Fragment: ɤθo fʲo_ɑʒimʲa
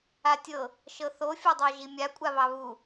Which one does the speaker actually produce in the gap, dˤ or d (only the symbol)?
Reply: dˤ